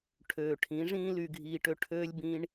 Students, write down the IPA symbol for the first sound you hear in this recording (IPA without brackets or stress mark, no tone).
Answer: ʈʰ